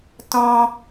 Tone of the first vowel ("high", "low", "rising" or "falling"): high